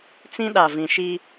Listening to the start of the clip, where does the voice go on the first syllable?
high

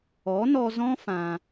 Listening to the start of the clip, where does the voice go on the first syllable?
rising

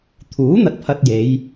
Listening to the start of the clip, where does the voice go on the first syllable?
rising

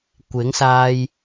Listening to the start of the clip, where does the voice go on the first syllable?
rising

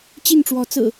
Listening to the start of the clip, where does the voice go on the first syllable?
falling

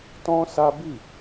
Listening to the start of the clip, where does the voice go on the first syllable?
high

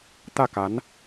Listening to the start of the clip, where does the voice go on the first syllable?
falling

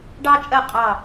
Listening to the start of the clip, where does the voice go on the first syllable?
high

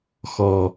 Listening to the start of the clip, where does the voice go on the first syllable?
low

